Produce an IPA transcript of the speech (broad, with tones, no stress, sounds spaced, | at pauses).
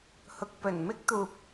h ʊ˧ k̚ p ɵ˨˩ n m ɪ˥ k̚ t̪ uː˨ p̚